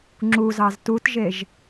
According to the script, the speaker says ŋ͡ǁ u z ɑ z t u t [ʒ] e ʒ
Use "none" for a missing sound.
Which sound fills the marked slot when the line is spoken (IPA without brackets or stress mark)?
ʒ